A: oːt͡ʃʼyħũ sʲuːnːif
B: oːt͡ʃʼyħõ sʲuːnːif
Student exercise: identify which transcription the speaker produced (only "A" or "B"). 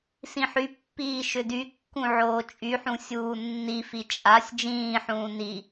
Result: A